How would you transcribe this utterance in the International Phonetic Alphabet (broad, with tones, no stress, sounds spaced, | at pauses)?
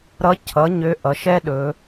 ɾ ʌ˧˥ cʰ ʌ˩˥ ɲ ø˧˥ ʔ ʌ˩˧ ʃ ɛ˥ ɗ ɵ˩˧